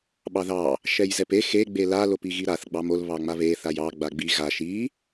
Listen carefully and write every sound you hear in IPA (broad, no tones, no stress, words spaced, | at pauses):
ɓɑðɑ | ʃɛjzɛpe xe ɡ͡bela lopiɣiɾaθ ɡ͡bɑmol βɑŋ͡maβe θajɑ ɡ͡baɡ͡bi ɣa ʃi